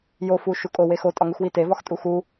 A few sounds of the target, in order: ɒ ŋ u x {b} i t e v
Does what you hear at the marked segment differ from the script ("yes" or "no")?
yes